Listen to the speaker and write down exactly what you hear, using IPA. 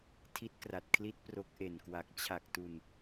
tʰ i˦˥ t̚ k r a˨˩ t̚ kʰ l i˦˥ t̚ p r o˦˥ k̚ ʔ e˨˩ n k w a˨˩ k̚ t͡ɕʰ a˨˩ k̚ t u˨˩ n

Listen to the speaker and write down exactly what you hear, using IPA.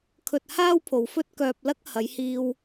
kʰ ɵ˧ t̚ h aː˥ w pʰ o˨ w f ɵ˥ t̚ k œː˧ p̚ l ɐ˥ k̚ h ɐ˨˧ j h iː˧ w

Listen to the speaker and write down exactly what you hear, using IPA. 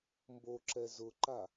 m b o ǁ ɛ z ʊ ǃ a

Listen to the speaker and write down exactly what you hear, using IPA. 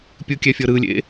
pʲ ɯ kʲ ɛ fʲ ɤ ɾ ɯ lʲ ḛ

